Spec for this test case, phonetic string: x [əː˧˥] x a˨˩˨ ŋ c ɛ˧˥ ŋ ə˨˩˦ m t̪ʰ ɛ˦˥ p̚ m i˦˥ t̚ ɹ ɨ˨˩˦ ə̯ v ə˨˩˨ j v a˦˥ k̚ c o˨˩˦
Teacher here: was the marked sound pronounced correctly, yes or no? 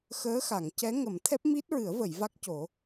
yes